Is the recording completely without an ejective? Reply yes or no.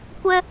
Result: yes